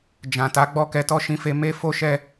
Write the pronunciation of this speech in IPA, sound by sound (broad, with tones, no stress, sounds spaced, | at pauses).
d͡ʒ ã˨ t a˨˦ ɡ͡b ɔ˦ k ɛ˧ t ɔ˦ ʃ ĩ˧ f e˧ m e˦ f o˦ ʃ ɛ˦˨